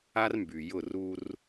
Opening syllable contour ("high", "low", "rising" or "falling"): high